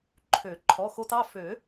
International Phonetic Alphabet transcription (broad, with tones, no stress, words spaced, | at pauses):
ǃʰø˨˩˦ ǃʰɔ˩˧˩xo˧tɑ˩˧˩ fø˨˩˦